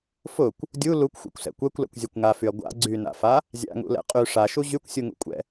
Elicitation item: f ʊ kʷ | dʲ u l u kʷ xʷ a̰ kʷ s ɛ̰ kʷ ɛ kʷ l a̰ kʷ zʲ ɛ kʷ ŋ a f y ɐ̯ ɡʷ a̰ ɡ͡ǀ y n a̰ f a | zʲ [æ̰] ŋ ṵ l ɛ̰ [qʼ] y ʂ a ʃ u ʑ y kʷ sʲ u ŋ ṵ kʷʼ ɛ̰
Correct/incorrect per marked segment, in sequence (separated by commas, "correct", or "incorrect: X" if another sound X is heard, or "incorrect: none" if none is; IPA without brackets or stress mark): incorrect: a̰, correct